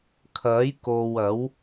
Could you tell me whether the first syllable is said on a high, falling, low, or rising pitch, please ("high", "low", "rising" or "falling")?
rising